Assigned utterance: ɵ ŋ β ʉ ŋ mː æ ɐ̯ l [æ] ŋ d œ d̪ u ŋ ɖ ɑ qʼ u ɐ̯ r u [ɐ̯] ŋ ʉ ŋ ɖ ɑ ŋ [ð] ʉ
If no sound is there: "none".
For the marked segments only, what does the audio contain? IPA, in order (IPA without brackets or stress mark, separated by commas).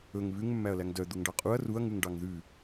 æ, ɐ̯, ð